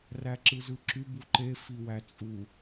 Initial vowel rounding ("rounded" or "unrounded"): unrounded